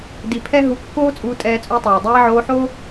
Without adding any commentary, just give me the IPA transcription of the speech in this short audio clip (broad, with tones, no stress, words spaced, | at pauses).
di˧pʰɛ˦ ɦu˧kːoː˦t͡sʼuː˧ tʼɛː˧t͡sʼu˧tˤɛː˨ dˤɛː˧ʕoː˧ħo˦